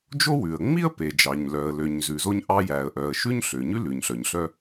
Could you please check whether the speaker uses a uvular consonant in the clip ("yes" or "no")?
no